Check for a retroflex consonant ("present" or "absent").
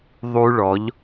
present